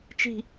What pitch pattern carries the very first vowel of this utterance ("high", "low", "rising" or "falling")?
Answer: low